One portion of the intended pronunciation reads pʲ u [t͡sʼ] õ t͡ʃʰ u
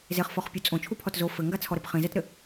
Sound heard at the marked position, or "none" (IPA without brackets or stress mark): t͡sʼ